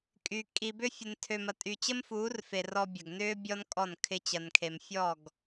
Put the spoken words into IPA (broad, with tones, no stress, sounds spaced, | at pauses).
kʼ y˧ kʼ i˧ b ʏ˦ fʲ ə˧ n tʰ ø˧ m ɐ˧ tʼ y˧ t͡ɕ ə˦ m f uː˨˦ r f e˨ r ɔ˧ bʲ ɐ˨ ɡ n ʏː˦ bʲ ɔ˦ n kʼ ɔ˦˨ n kʰ ɪ˦ t͡ɕ ɐ˧ n kʰ e˧ m fʲ ɔ˦˨ ɡ